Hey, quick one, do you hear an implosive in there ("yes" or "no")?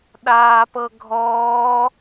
yes